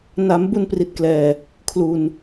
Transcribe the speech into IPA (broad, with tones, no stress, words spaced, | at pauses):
na˩˦m bu˧npri˨˩t̚ klɛː˨˩ | kʰlu˨˩n